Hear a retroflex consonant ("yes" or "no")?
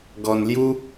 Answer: no